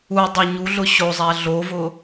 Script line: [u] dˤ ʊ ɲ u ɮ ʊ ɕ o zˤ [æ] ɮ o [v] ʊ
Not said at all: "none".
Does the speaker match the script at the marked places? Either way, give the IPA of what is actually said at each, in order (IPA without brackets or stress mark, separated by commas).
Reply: u, æ, v